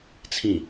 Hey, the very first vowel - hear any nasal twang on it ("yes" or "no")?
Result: yes